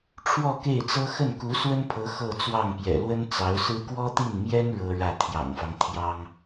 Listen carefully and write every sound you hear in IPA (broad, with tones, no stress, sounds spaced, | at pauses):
ʈ͡ʂʰ w ɔ˥˧ k e˥˩ ɪ̯ t͡s ɤ˥ x ə˥˩ n k u˧˥ s w ə˥ n pʰ ɤ˧˥ x ɤ˥˧ t͡s w ɑ˥˩ ŋ p j ɛ̰˨˩ l w ə˥ n t͡s ɑ˧˥ ʊ̯ s ɹ̩˥ k w ɔ˥ t̪ i˥˩ n m j ɛ˥ n ɻ ɤ˥ ɻ ä˥˩ t̪ʰ j ɑ̰˨˩ ŋ f ɑ˦ ŋ t̪ʰ j ɑ˥ ŋ